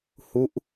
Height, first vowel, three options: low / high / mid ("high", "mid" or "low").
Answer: high